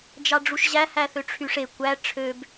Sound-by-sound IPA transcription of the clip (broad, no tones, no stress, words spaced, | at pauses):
d͡ʒɑɖ͡ʐuʃʑæ hæθøʈ͡ʂʰyʂe kʷæ ʈ͡ʂʰøb